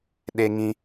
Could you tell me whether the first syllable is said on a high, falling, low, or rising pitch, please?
high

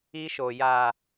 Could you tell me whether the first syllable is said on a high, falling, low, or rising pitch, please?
high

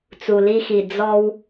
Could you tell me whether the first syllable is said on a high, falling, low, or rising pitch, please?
low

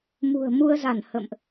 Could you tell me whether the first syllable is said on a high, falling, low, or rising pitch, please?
low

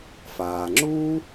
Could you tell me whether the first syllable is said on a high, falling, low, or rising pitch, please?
low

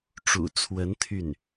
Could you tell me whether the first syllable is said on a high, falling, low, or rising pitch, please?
low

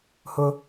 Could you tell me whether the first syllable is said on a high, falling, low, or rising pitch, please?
high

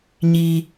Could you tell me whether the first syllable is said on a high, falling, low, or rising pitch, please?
high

